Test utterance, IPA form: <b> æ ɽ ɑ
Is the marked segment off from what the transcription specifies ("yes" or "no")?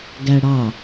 yes